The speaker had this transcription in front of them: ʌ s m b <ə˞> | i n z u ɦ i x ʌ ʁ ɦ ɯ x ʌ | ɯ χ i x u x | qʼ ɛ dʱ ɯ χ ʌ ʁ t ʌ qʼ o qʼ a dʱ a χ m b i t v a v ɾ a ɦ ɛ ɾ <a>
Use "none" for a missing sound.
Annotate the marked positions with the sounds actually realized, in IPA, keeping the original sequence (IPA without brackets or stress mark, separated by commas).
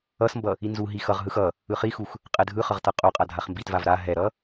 ʌ, ʌ